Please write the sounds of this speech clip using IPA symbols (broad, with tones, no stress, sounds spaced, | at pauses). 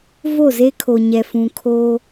v o˦˨ z e˦ kʰ o˨ ɲ ɛ˨ f ũ˨ kʰ oː˦